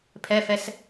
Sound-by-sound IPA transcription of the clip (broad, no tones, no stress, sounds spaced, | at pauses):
pʰ ɛ f ɛ s